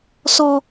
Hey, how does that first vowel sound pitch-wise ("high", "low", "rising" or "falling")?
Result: low